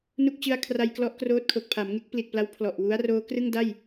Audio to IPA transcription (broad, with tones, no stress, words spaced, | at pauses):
nu˥˩k̚ t͡ɕɯ˧a̯ kʰra˧jklɔ˦˥ʔ kroː˦˥t̚kʰo˨˩k̚ pʰa˩˦mŋe˦˥k̚ pli˨˩t̚pla˦˥w pʰlɔ˨˩ʔ wu˦˥a̯roː˦˥ krɯ˥˩ŋda˥˩j